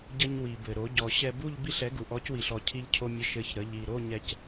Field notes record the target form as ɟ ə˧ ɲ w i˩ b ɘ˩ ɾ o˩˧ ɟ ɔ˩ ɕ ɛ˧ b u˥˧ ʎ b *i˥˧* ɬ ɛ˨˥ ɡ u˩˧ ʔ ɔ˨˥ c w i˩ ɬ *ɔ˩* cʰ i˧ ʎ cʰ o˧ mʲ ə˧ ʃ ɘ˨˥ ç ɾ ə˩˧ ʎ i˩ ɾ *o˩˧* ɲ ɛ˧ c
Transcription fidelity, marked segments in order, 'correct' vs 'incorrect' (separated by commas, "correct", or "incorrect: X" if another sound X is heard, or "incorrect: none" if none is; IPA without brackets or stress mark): correct, correct, incorrect: o˥˧